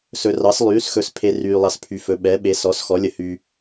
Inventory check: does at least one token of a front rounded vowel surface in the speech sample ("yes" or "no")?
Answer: yes